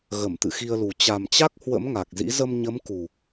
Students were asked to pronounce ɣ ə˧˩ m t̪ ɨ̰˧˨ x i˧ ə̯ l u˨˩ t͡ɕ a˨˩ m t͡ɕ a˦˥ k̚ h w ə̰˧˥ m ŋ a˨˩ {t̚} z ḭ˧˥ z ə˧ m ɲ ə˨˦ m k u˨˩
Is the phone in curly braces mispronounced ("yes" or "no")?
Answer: yes